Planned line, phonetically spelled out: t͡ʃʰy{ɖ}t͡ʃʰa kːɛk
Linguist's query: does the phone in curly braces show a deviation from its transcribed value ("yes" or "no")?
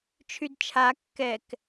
yes